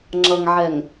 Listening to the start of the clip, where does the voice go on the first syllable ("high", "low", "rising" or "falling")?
low